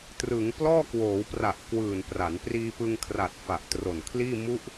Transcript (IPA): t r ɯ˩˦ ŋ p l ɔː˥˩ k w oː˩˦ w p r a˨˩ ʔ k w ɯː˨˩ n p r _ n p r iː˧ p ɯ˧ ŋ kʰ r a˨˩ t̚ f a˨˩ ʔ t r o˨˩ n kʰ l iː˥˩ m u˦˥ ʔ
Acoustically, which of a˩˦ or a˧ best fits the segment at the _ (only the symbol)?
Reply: a˩˦